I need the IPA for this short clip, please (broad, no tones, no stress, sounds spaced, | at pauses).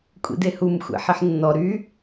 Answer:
kʷʼ ḭ d e h u m xʷ ḛ ħ i ħ nː ɔ ɾ y